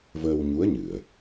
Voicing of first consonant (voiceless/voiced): voiced